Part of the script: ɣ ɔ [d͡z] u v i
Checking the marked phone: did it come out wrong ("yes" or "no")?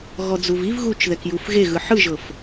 no